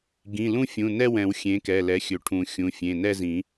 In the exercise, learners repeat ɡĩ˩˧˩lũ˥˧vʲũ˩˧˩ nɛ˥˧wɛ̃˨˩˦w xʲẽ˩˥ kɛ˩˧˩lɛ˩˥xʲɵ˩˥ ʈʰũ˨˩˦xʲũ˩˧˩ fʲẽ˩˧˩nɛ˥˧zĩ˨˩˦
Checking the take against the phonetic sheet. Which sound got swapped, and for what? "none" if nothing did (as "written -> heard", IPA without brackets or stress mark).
vʲ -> fʲ